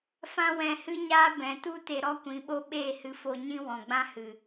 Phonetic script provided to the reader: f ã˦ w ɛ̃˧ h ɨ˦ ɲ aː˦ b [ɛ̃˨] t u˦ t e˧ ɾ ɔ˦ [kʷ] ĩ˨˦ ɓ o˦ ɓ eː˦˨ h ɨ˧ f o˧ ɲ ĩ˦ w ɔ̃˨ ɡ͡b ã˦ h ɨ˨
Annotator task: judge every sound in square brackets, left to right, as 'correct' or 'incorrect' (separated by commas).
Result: correct, correct